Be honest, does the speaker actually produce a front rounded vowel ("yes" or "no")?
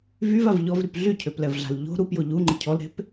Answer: yes